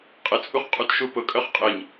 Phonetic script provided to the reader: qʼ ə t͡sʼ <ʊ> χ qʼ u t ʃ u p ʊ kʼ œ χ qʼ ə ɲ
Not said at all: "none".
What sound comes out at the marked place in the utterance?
u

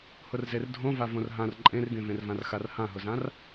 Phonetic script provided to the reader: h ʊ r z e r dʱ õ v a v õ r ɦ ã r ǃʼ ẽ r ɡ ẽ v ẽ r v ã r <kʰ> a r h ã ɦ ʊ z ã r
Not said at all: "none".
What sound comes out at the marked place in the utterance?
x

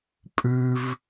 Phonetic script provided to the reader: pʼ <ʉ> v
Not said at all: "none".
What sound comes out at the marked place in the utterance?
ʉ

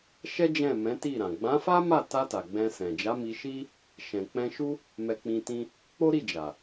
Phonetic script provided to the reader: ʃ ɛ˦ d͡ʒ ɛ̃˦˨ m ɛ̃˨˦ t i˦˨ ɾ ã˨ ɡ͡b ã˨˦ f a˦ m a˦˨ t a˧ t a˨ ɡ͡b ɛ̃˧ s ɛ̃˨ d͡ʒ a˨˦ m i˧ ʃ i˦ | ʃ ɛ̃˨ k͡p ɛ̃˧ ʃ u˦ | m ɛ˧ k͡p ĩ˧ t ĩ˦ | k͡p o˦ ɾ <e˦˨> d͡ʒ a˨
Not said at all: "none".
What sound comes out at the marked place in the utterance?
i˦˨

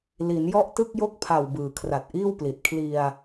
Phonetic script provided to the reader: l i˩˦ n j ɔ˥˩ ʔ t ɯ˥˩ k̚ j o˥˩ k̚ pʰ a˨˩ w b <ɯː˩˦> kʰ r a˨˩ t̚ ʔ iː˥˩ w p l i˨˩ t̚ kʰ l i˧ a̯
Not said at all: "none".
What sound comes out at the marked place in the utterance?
ɯː˩˦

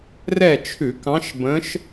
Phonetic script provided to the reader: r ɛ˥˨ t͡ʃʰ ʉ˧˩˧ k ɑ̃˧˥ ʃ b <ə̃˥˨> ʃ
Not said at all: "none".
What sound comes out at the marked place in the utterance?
ə̃˧˥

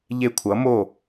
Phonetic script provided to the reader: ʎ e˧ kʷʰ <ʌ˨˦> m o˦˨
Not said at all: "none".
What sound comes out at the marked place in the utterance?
ʌ˨˦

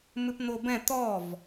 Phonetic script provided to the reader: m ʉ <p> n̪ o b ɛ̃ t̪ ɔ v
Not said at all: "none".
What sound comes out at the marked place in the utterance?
p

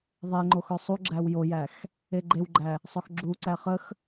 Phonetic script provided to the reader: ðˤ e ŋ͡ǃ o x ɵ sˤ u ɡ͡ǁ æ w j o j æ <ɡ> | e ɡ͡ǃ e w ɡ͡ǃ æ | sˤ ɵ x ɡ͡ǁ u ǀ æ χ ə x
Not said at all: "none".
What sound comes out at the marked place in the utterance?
x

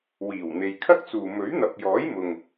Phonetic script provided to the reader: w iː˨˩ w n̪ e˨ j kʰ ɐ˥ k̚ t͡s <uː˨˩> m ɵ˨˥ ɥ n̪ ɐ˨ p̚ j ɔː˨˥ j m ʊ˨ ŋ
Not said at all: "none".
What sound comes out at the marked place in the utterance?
uː˨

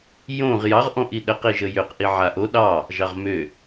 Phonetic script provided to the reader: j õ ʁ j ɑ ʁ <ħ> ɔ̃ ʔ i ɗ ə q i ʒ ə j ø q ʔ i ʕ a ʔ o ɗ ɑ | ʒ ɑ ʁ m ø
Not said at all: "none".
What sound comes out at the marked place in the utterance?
ʔ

